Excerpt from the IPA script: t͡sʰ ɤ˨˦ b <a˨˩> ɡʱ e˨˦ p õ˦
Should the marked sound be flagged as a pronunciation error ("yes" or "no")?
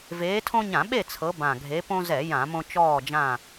yes